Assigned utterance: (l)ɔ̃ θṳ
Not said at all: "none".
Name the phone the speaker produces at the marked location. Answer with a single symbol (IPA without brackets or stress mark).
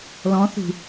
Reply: l